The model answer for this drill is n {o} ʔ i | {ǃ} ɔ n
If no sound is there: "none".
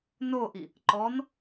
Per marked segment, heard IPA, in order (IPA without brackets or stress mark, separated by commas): o, ǃ